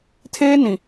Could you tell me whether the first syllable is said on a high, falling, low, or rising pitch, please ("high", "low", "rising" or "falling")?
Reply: high